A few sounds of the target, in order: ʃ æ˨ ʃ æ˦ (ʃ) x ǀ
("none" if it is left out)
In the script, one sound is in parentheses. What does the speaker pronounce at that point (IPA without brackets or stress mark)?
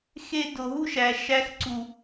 none